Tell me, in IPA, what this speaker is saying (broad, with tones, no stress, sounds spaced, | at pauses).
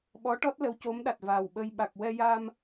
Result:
ɓ ɔ˧˥ ʈ ɔ˦˥ t̚ l ə˧˥ w c o˧˥ m ɗ a˨˩ t̚ v a˨˩ w ɓ ə˧ j ɓ a˨˩ k̚ w ɛ˧ j a˧ m